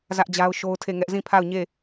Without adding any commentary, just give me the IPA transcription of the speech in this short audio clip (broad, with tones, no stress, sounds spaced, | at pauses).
z ä˦ ʔ d͡ʑ a˦ ʊ̯ ʃ o˦ ʊ̯ tʰ e˦˨ ŋ ɛ˦ ʔ z ĩ˦˨ pʰ a˦˨ ʊ̯ ɲ e˦˨